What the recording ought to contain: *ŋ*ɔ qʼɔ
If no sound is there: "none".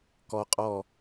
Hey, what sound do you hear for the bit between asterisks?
k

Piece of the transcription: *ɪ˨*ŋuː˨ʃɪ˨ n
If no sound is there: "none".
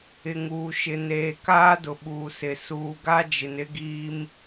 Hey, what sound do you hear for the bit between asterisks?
ɪ˨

